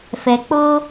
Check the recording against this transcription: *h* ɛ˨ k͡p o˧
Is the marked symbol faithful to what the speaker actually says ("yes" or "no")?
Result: no